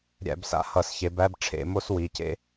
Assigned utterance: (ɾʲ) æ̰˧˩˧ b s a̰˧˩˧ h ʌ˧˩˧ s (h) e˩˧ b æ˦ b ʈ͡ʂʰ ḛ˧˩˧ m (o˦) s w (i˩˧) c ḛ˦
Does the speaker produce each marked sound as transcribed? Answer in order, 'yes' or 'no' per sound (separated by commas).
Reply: yes, no, yes, no